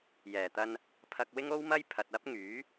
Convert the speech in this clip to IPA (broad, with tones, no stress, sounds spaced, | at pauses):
j ɛː˨˩ t̪ ɐ˧ n | pʰ ɐ˧ k̚ w ɪ˥ ŋ o˥ w m ɐ˥ j pʰ ɐ˨ t̚ ɐ˥ p̚ ŋ yː˨˥